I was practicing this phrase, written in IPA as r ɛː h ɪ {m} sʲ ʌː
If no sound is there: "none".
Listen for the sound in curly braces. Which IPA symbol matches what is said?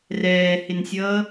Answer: n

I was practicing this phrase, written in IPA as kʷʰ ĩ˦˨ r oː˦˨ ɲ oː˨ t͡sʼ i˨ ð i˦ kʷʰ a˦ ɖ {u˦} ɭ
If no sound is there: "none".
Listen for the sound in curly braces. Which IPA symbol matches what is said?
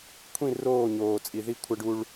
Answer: u˦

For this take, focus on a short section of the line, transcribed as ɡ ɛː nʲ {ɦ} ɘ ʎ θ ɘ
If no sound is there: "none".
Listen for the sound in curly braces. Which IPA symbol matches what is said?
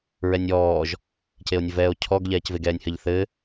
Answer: h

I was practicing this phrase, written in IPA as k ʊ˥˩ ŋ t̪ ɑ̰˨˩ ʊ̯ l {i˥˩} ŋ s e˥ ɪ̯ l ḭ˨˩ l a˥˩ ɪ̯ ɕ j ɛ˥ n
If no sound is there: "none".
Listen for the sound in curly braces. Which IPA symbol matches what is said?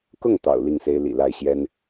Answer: i˥˩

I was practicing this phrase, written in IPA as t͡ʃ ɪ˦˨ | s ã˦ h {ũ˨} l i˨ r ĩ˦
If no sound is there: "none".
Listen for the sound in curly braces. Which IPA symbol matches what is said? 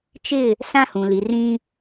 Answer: ũ˨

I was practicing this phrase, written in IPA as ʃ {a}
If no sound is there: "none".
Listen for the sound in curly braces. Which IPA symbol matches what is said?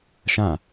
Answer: ã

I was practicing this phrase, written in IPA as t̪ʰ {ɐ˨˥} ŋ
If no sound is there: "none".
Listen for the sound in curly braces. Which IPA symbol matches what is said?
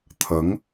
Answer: ɐ˨˥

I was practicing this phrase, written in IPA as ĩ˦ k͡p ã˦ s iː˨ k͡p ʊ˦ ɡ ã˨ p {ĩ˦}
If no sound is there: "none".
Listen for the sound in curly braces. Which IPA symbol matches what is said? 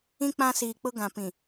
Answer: ĩ˨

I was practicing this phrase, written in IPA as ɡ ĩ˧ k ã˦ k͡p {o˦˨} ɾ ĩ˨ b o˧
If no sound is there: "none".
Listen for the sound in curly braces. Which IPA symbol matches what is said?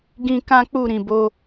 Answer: u˦˨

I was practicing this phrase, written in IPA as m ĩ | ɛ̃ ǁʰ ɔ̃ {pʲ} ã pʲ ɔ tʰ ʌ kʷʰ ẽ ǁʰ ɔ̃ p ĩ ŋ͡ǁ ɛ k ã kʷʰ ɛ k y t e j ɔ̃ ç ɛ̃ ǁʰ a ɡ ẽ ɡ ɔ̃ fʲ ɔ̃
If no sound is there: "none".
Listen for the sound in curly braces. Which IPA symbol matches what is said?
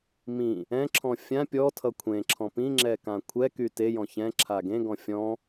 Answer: fʲ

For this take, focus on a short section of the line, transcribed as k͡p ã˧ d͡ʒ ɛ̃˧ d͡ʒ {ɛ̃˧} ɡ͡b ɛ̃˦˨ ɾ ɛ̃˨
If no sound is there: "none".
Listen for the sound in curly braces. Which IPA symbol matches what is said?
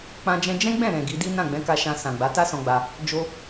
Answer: ɛ̃˦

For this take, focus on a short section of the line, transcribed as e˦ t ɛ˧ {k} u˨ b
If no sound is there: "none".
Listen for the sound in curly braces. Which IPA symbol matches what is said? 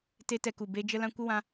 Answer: k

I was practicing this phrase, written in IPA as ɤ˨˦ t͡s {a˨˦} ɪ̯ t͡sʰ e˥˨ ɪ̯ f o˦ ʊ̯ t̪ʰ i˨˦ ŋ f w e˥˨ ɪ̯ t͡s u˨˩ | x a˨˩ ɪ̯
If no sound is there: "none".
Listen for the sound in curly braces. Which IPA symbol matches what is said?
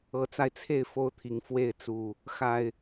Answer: a˧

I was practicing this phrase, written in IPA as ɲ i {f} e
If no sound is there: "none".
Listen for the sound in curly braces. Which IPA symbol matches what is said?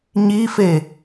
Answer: f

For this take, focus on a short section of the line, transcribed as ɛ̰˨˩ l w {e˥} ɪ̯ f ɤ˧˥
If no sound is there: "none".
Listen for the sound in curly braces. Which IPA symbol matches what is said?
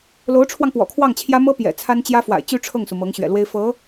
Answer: e˥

